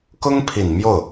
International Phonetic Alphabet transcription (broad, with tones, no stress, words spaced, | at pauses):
kʊ˥ŋpʰi˨˩n mjo˥˩ʊ̯